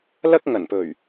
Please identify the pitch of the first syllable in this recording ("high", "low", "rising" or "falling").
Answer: high